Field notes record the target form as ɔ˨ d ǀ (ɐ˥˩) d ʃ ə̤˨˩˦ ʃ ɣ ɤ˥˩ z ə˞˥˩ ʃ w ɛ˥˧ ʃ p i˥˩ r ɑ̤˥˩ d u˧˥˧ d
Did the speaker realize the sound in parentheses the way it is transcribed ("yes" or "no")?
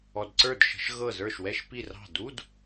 no